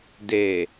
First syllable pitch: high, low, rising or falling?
low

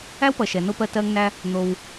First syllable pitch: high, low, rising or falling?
high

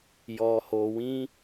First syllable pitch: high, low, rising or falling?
low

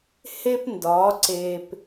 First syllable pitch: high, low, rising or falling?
high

